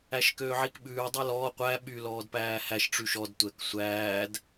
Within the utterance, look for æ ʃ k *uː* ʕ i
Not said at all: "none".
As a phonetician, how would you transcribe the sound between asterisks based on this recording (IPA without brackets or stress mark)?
øː